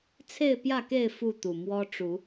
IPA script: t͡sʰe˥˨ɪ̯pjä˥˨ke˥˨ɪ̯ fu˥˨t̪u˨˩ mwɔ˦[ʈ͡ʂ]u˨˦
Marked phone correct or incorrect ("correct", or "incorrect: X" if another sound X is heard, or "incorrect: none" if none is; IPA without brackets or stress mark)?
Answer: correct